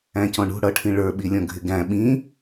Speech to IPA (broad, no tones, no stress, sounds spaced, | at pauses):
æ̃ c ɔ̃ ɳ ṳ ɽ ʌ ʈʰ ĩ ɭ ə˞ ɓ i lʲ ɔ̃ ɡʱ ɪ ɡ æ̃ ɓ ĩ